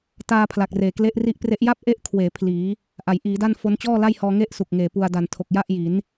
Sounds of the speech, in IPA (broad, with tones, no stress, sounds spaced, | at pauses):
t aː˧ pʰ l a˨˩ k̚ r eː˨˩ k l e˦˥ ʔ r i˦˥ ʔ p r e˦˥ ʔ j a˥˩ p̚ ʔ e˦˥ ʔ kʰ w eː˩˦ pʰ l iː˩˦ | ʔ a˩˦ j ʔ iː˩˦ d a˥˩ n f o˦˥ n t͡ɕ ɔː˥˩ l a˥˩ j h ɔː˧ ŋ e˥˩ ʔ s u˨˩ k̚ ŋ eː˨˩ p u˧ a̯ d a˨˩ n tʰ o˨˩ k̚ j a˥˩ ʔ j i˩˦ n